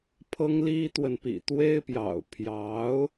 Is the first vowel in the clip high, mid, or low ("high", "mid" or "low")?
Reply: mid